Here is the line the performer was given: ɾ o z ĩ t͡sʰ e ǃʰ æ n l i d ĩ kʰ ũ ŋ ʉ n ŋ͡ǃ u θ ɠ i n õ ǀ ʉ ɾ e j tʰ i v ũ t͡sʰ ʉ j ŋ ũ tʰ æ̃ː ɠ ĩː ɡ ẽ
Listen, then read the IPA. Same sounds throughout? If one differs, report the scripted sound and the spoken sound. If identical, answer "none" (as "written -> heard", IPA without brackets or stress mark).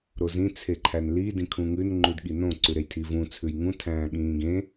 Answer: θ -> d